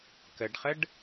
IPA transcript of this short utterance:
kəɖχəɖ

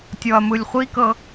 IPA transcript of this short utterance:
tʲɔɐ̯mɯlʲχʷikɤ

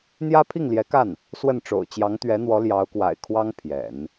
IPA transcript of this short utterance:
n̪jä˥pʰi˥˩ŋljɛ˧˥ka˥˩n | swə˥˩nʈ͡ʂo̰˨˩ʊ̯ t͡ɕjɑ˧˥ŋt̪ɥɛ˧˥n̪wɔ˧˥ ljɑ˧˥ʊ̯kwa̰˨˩ɪ̯kʰwɑ˥ŋ pʰjɛ̰˨˩˦n

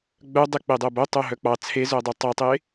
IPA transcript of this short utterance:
ɡ͡bœdˤe k͡pedˤœbo tˤœɦœk͡pɑ t͡sʰezœdˤo tˤɑtˤe

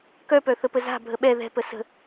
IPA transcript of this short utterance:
kœpœ θəpəza̤ bʱəɓɛ ðɛ̤pə sə̤

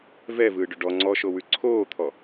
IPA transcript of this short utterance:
vɛvɯːɖɵ ɖɔ ŋ͡ǀɔʃowʉ ǀʰoːt̪ʰɔ

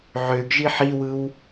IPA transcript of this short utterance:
ʕøɡʒi ħiwɯw

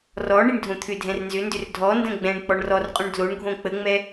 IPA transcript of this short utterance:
rɔ ɳiɳdʱõt̪ʰʏdʱɛ̃r nzʏndʏr dʱɔndə̃ ɡ͡bɛ̃ɳ k͡pɔɳrɔrqʼũɳ dloɳ ɡʱõk͡pəŋ͡mɛ

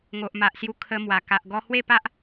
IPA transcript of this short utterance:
ŋo˨ʔma˨ʔsju˧ kʰə˧mwa˨˩ ka˨ʔɡɔ˧hwe˥˧pa˦ʔ

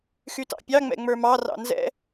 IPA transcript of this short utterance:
xytɑ̰pʲɑ ŋ͡mɛ̰ŋ͡mə˞mɑ rɑ̰nzɛ̰

